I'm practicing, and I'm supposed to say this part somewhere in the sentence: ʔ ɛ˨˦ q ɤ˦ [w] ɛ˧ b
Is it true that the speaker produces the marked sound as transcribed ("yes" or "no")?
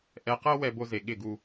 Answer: yes